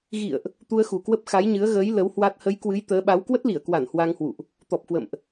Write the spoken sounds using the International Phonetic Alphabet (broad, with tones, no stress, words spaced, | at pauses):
ɣḭ˧˨ə̯ʔ | t̪u˧ə̯xu˨˩kwə˦˥p̚ xa˨˦jɲɨ˨˦ə̯ɣəː˨˦j lə˨˦whwa˦˥t̚ hə˨˦jkwɨ˨˦j t̪əː˨˦ɓa˨˦w kwə˦˥t̚li˧˩ə̯kwa˧˩n hwa˧ŋhwṵ˧˨ʔ | t̪ɔ˨˩p̚kwə̰˧˨mʔ